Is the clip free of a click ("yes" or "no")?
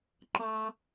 no